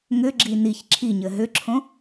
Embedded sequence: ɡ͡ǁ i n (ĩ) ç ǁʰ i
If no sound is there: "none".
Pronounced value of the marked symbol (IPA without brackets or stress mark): i